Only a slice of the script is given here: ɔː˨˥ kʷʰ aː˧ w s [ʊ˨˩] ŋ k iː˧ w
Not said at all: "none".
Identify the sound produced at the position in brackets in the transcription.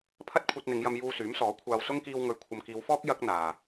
ʊ˥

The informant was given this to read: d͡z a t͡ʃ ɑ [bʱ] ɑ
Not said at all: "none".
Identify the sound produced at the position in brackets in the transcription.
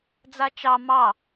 m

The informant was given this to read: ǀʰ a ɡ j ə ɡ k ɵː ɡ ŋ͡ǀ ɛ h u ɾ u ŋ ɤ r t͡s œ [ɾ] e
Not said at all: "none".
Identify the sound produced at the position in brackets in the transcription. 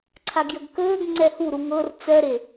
ɾ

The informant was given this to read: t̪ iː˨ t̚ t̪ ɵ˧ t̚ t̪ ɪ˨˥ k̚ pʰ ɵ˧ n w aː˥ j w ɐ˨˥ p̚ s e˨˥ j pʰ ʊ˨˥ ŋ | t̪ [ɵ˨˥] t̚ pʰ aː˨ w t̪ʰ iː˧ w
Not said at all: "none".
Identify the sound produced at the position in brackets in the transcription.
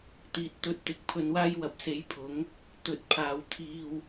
ɵ˨˥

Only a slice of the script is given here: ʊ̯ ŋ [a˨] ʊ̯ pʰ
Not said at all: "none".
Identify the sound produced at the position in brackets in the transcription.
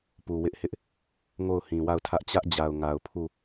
a˨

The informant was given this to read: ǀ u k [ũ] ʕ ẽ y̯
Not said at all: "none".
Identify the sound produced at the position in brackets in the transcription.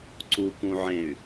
ũ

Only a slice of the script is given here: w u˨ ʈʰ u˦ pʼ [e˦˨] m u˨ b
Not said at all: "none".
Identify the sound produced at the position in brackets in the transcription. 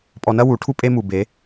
e˦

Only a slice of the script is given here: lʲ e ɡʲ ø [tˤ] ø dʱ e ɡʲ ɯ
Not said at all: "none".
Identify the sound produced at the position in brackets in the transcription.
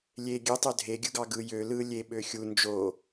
tˤ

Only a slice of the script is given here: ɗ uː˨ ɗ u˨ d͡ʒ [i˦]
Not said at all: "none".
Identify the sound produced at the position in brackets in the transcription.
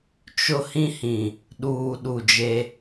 e˦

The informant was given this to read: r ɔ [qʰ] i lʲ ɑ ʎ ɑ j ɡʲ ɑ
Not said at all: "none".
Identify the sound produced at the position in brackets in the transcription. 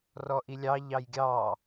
ʔ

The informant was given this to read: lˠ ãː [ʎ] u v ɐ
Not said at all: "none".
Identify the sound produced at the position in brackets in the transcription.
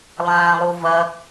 lˠ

